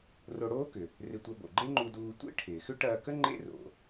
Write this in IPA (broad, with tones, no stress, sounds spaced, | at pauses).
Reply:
r o˧ ɽ oː˥ k ʏ˩ | r ɪ˧ tʷ ɐ˧ b o̰˩ ɡ͡ǃ e˥ ŋ͡ǃ u˧ d uː˧ tʷ ḛ˥ ʈʰ ɪː˩ x ʏ˥ ʈ ɐː˧ k ə˥ ŋ͡ǃ ḛ˥ r o̰˩